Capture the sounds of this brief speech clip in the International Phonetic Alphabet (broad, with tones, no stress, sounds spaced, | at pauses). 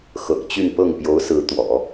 x ɤ̰˨˩ ŋ t͡ɕ y˥˧ n p ɤ˥˩ ŋ p j o˧˥ ʊ̯ s ɹ̩˧˥ t̪ w ɔ̰˨˩˦